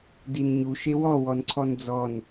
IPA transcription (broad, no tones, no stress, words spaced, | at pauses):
dinɲu ʃewɔ wɔnǀʰɔnd͡zɔn